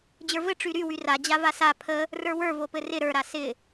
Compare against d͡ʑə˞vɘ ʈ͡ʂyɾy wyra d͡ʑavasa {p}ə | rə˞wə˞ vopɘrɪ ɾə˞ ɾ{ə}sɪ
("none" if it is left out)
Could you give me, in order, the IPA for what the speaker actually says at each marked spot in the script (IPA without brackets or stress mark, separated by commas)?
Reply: pʰ, a